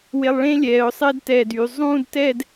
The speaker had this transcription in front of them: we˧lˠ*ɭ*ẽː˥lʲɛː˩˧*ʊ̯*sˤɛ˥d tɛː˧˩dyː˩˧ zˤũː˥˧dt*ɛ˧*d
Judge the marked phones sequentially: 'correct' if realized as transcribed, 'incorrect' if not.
correct, correct, incorrect

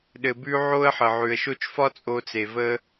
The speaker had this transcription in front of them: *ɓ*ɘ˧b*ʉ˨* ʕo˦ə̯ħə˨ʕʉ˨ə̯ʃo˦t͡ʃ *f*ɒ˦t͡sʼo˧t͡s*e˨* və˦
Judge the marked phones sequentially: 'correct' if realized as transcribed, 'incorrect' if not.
incorrect, incorrect, correct, correct

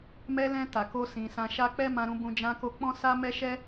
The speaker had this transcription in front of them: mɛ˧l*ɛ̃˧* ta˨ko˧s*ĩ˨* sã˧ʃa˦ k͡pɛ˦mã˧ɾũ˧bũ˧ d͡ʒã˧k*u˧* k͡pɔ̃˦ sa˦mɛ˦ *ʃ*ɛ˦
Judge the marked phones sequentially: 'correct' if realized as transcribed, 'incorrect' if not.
correct, correct, incorrect, correct

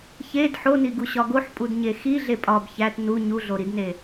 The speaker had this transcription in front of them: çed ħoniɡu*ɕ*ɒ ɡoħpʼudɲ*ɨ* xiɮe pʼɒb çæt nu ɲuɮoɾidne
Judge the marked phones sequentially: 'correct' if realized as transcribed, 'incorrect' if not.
correct, incorrect

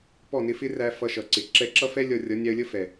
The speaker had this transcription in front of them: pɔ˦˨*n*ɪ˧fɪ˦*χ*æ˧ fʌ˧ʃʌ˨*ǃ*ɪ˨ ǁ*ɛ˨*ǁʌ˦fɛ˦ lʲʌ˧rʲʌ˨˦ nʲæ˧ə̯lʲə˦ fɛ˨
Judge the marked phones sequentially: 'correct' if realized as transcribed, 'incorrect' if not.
correct, incorrect, incorrect, incorrect

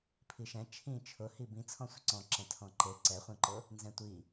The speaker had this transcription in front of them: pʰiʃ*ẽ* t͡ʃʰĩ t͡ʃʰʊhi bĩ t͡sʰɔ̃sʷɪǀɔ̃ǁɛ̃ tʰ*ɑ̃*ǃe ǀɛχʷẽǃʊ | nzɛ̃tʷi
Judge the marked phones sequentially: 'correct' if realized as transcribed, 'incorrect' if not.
incorrect, incorrect

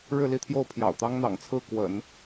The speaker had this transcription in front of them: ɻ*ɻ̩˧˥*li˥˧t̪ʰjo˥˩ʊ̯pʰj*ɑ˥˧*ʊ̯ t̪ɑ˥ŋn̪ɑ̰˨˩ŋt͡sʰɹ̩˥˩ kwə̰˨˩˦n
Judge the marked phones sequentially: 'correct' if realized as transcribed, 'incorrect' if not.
incorrect, incorrect

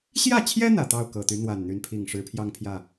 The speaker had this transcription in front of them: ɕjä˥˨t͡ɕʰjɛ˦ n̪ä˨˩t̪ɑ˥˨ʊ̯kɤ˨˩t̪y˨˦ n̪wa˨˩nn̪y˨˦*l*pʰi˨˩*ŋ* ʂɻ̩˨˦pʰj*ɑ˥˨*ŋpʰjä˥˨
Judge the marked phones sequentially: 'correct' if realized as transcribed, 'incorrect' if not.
incorrect, correct, incorrect

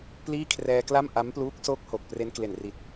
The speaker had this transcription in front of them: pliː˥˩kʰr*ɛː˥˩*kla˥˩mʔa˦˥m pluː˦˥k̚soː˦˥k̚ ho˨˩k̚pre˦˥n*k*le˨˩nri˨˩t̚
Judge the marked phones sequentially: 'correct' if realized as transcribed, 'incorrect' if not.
incorrect, correct

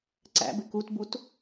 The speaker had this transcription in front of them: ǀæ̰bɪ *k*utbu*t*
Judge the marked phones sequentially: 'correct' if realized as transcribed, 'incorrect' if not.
correct, correct

